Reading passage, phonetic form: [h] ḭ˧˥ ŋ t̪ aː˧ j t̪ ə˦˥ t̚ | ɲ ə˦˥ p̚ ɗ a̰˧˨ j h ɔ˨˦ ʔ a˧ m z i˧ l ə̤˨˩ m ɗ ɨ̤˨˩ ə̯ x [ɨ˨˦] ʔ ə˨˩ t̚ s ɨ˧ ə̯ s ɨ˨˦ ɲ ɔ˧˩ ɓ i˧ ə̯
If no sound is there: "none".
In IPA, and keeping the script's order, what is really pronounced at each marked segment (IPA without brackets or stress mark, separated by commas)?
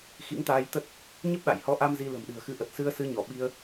x, ɨ˨˦